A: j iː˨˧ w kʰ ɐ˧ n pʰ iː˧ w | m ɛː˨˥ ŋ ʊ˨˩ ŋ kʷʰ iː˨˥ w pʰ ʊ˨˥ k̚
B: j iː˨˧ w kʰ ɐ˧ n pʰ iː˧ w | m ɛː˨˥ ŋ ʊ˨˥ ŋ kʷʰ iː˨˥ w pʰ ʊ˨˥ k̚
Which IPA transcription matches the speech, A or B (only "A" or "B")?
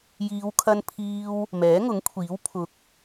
B